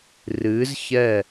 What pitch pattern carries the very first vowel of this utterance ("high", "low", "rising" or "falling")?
rising